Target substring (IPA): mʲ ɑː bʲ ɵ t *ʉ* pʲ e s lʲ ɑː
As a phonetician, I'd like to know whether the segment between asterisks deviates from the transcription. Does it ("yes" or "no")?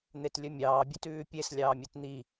yes